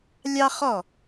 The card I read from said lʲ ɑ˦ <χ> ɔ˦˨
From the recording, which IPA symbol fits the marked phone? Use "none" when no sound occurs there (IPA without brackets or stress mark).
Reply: χ